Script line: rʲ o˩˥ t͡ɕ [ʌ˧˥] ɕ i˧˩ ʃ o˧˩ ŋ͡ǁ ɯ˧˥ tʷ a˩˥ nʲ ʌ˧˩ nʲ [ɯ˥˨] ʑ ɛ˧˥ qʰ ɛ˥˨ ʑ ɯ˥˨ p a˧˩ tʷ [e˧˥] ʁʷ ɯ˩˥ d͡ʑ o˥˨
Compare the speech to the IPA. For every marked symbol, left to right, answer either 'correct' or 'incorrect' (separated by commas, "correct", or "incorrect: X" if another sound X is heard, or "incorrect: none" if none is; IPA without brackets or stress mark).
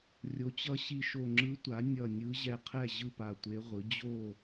correct, incorrect: ɯ˧˥, correct